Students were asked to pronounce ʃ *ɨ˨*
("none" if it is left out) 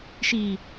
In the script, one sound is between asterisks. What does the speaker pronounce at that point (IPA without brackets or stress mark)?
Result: i˨